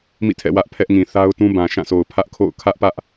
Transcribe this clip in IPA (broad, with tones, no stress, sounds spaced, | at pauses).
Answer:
m ḭ˦˨ tʰ ɛ̰˦˨ w ä˦ ʔ pʰ ɛ˦ ʔ ŋ ĩ˨ θ a˦ ʊ̯ t ũ˦ b ã˨ ʃ ã˦˨ s o˨ ʊ̯ pʰ ä˦ ʔ kʰ o̰˦˨ ʊ̯ kʰ ä˦ ʔ p ä˦ ʔ